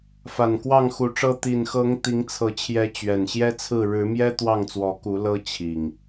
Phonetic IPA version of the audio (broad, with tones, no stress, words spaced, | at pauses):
fa˨˩nkwɑ˥˨ŋxu˨˦ʈ͡ʂɤ˦ t̪i˨˩nxɤ˨˦ŋ t̪i˨˦ŋt͡sʰɤ˨˦t͡ɕʰjɛ˨˦ t͡ɕɥɛ˨˩n ɕjɛ˦t͡sʰɹ̩˥˨ ɻɻ̩˨˦mjɛ˦ t̪wɑ˥˨ŋt͡swɔ˨˦ku˨˦lɤ˦ t͡ɕʰi˨˩ŋ